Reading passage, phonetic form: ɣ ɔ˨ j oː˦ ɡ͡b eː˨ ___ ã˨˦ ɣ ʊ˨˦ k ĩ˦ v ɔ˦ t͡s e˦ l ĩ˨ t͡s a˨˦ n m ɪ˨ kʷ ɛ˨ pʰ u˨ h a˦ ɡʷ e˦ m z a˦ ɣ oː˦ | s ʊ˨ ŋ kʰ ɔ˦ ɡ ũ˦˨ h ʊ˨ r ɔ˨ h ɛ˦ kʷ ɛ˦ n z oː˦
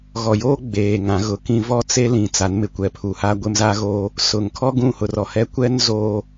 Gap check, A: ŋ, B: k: A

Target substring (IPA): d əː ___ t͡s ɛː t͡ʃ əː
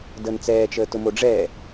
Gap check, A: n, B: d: A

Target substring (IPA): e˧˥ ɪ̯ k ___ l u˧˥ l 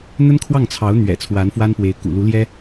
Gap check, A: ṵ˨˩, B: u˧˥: A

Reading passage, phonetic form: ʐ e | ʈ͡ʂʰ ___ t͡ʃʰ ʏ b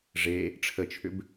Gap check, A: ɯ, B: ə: B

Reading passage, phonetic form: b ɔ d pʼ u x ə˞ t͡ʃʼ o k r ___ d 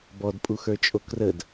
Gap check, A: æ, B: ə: B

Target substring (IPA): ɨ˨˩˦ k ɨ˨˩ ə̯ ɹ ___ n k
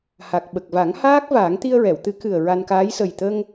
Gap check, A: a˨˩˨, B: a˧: B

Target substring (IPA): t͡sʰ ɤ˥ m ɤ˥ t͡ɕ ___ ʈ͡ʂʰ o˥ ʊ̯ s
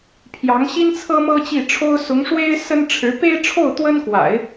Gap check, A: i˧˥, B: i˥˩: B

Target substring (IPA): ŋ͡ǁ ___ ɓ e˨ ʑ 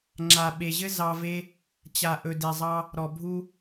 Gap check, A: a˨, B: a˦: A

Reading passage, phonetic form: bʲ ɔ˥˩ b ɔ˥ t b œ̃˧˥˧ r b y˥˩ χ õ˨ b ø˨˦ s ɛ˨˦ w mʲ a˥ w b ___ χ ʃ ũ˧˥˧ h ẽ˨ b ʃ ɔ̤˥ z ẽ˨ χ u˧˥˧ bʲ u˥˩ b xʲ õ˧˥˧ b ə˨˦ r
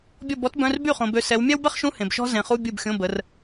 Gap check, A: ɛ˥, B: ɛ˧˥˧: A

